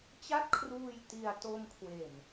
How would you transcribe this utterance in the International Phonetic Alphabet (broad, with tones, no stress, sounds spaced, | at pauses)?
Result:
t͡ɕ a˥˩ t̚ kʰ r uː˧ j t i˧ a̯ t o˧ m kʰ w e˨˩ n